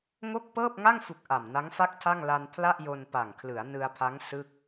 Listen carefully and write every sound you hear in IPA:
ŋ o˥˩ k̚ p ɤː˥˩ p̚ ŋ a˥˩ ŋ f u˨˩ k̚ ʔ a˨˩ m n a˦˥ ŋ f a˥˩ k̚ tʰ a˥˩ ŋ l a˧ n pʰ l a˥˩ ʔ j o˧ n p a˨˩ ŋ kʰ l ɯ˩˦ a̯ n ɯ˧ a̯ pʰ a˦˥ ŋ s ɯ˥˩ k̚

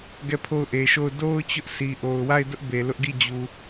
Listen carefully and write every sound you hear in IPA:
ɡ ɛ˦˨ pʰ o˦˨ ʊ̯ ʔ e˨ ʃ o˦˨ ʊ̯ d o˦ ʊ̯ t͡ɕ ʊ˦ ʔ s i˨ ʔ o˨ ʊ̯ w a˦˨ ɪ̯ d ʊ˦ ʔ b e˨ l ʊ˦ ʔ ɡ i˦˨ d͡ʑ u˨

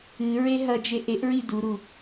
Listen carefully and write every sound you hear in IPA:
ɨ ɹ e ɦ ɐ d͡ʒ e ʔ e ʔ ɹ i d u ɾ u

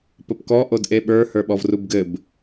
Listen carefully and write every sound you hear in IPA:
p ə p k ɔ ʔ o d ʔ e ɓ ə˞ h ə˞ ɓ ɔ v r u b ɡ ɘ b

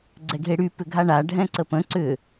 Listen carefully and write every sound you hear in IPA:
ɡ͡ǀ ɛ ɡʱ e ɽ y p ʏ ɡʱ a ɳ a ɖʱ ɛ̃ ǀ ə p ə̃ ǀ ʏ

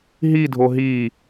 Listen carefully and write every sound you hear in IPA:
ɦ i dʱ o ɦ i

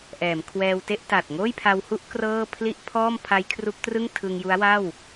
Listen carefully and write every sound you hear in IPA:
ʔ ɛː˩˦ m kʰ w ɛː˧ w t e˥˩ ʔ t a˨˩ t̚ ŋ oː˥˩ j pʰ a˧ w h u˥˩ ʔ k r ɤː˥˩ pʰ l i˥˩ ʔ pʰ ɔː˥˩ m pʰ a˦˥ j kʰ r u˦˥ k̚ t r ɯ˥˩ ŋ tʰ ɯ˧ ŋ j u˦˥ a̯ w a˥˩ w

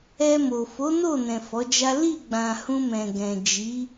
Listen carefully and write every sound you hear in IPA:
ɛ˧ m o˨ f o˨˦ n o˦˨ n ɛ̃˨ f ɔ˨˦ d͡ʒ a˦ l i˦˨ ɡ͡b ã˨ h ũ˧ m ɛ̃˨ ɡ ɛ̃˨ d͡ʒ i˨˦

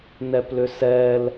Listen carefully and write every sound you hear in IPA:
n ɛ p l ʏ s ɛ l

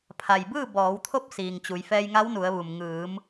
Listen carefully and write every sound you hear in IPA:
pʰ a˩ j b ɯː˥˨ b ɔː˩˧ w t̪ʰ o˧˥ p̚ s iː˩ ŋ t͡ɕ u˩˧ j f ɛː˧ j ŋ a˧˥ w n u˩˧ ə̯ ʋ u˩ m ŋ ɯː˩˧ m

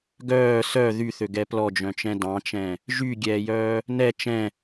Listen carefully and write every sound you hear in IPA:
ɡ œː s œ ð y θ ø ɡ ɛ p l ɔ d͡ʒ œ̃ t͡ʃ ɛ̃ d ɑ̃ t͡ʃ ɛ̃ | ʒ y ɡʲ ɛː j œː | n ɛ t͡ʃ ɛ̃

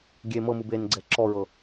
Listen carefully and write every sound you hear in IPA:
ɡʲ e m ɤ m ɯ b e n ɡ͡ǀ ɛ ǁ ɔ ɹ ɤ

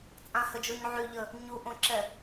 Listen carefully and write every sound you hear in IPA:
t͡sʼ ã h ə d͡ʒ o ɲ ʕ y ʎ ə | ɲ u ʔ õ ǁ ɛ

